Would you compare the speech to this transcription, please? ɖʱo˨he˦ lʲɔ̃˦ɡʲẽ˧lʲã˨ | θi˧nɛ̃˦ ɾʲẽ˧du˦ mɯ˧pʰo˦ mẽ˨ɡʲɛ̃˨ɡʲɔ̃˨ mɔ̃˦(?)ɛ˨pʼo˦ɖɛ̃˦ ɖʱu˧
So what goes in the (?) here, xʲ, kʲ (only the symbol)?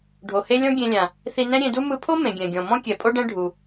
kʲ